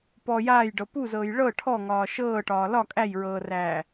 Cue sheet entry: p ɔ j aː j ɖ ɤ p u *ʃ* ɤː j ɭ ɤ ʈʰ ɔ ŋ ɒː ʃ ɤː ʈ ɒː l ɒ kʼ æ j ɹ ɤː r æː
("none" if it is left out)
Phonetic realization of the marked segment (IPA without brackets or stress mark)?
z